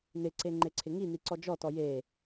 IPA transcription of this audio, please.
nɪǀe ŋ͡ǃeǀʰɪŋin̪i ǀɔd͡ʒɔtɔ je

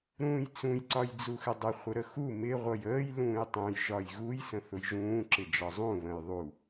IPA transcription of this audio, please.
ɾũːjt͡sũj ǀɒjd͡zuxɪdˤɪ χʷəɾəxu mɪ ʁʷʌjəːj lũːjtˤũj ʒɒjɣuj sə̃θʊjʒũː ǁɪd͡ʒɒzˤũ βə̃jðˤu

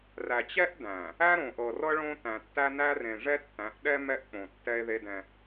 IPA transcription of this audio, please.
ræ˨t͡ɕɛ˦ʔdæ̃˨ | æ˦ɾõ˨ʔɤ˨rɤ˦ ɭõ˦ tæ̃˨tːæ˦næ˦rẽ˨ ʐɛ˦tːæ̃˨˦ʔɗɛ˦ mɛ˦ʔk͡põ˨ tːɛ˦e̯ðe˦dɛ̃˦

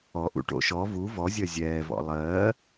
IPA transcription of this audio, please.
ɔʔṵʈo̰ ʃɔ vu vɔzʲɜ zʲɛːvɔ̰ lˠɜː

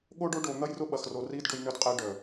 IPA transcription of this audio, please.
ɠo˦ɖo˦ɖo˨ n̪ɐ˦jrʊ˦ɓɐ˨xro˨ ri˦d ɖʊ˦jnʏ˦dqʼe˦ ɖœ˨

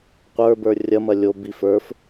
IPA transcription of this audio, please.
qʷə˞bə˞ rʲɐmɐ lʲo bif ə˞f

